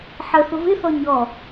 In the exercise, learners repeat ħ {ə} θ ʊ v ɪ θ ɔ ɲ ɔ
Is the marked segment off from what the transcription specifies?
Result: no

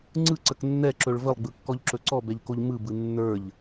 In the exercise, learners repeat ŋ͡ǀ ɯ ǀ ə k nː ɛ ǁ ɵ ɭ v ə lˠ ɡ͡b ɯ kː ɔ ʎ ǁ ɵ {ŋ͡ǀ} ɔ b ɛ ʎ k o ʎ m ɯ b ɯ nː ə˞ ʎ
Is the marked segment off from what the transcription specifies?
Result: yes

